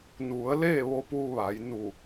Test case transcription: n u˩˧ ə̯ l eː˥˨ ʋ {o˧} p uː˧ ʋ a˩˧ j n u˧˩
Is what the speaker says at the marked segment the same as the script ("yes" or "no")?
yes